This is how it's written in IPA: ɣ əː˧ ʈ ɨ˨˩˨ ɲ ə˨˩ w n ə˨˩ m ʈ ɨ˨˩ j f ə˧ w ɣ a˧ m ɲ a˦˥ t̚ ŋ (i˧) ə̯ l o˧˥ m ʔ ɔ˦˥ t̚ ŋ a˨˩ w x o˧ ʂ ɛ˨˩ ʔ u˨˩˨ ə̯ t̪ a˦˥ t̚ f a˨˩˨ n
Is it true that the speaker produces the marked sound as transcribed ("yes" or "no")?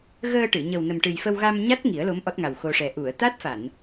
no